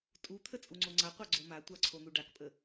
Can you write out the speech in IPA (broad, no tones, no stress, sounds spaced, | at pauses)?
tʼ u t̪ʰ ə t͡sʼ u ŋ͡ǀ o ŋ͡ǀ a qʷ ɑ ɡ͡ǀ o m a tʷ ɑ ǀʰ o n̪ u ɖ a k pʼ ə